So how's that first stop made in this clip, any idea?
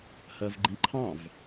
click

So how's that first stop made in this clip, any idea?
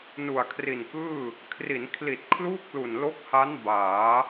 aspirated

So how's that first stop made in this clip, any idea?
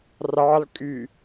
ejective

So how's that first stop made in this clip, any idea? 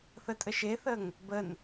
ejective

